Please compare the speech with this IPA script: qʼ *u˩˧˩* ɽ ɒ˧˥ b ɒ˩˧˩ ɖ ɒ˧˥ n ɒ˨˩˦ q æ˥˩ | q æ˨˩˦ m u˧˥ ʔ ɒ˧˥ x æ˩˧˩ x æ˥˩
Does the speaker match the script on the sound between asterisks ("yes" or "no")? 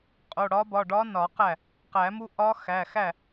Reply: no